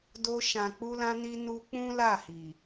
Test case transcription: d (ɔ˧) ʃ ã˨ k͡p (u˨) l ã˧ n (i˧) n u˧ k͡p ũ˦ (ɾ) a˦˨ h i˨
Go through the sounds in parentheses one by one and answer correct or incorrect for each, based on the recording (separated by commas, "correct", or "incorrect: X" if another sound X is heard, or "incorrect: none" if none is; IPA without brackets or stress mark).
incorrect: o˧, incorrect: u˧, correct, incorrect: l